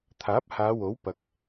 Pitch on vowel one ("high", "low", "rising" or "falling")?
rising